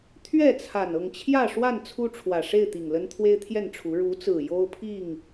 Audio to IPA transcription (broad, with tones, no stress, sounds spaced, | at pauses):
t̪ʰ ɥ ɛ˥˨ t͡sʰ a˨˩ n ɤ˥˨ ŋ t͡ɕʰ j ä˥˨ ʂ w a˥˨ n t͡sʰ u˦ ʈ͡ʂʰ w ä˨˩ ʂ e˥˨ ɪ̯ t̪ i˨˩ ŋ l ə˦ n t̪ʰ w e˦ ɪ̯ t̪ʰ j ɛ˥˨ n ʈ͡ʂʰ u˨˦ ɻ u˨˦ t͡s ɹ̩˨˩ j o˦ ʊ̯ pʰ i˥˨ ŋ